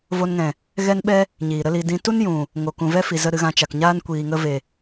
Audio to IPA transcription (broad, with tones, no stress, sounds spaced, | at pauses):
v o˧ n ŋ ɛ̃˨ | ɣ ɛ˦ n ɓ ɛ˦ | ɲ iː˨ ɾ ə˦ l i˧ d ĩ˧ t u˦ n j ũ˨ | ŋ o˨ k ũ˨ v ɛ˦ f i˨ z ə˦ ɾ ɨ˧ ɣ ã˧ t͡ʃ a˨ k ɲ aː˦ n kʷ iː˨ ŋ ə˧ v e˨